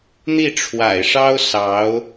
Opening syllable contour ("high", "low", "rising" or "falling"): falling